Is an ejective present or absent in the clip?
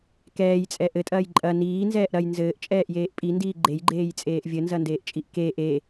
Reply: present